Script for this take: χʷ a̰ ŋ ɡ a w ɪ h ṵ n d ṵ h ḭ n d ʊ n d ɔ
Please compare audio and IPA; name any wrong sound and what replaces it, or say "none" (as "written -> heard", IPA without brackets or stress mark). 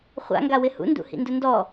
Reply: none